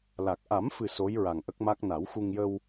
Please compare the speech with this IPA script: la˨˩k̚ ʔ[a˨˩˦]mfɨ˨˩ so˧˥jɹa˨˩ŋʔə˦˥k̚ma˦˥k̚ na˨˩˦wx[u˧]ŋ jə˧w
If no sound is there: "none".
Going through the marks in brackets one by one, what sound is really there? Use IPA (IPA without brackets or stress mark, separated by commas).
a˨˩˦, u˧